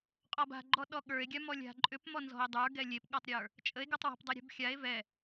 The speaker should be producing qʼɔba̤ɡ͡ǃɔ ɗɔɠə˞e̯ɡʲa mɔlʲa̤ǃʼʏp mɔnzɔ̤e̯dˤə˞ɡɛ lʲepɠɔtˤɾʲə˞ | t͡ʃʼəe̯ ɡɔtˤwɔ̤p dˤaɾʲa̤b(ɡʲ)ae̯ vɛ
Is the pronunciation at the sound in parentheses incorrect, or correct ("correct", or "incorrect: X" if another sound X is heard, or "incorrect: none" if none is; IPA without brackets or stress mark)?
incorrect: xʲ